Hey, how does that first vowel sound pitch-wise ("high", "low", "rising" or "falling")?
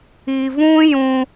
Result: low